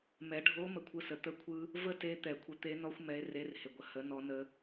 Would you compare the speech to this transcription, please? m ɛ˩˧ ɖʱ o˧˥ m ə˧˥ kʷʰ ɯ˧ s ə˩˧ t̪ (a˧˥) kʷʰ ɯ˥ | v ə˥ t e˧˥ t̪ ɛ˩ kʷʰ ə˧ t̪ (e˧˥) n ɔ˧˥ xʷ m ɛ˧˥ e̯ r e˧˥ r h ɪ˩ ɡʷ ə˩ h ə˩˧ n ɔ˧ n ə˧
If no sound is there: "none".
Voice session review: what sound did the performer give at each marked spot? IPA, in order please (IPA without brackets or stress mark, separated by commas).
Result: ə˧˥, e˧˥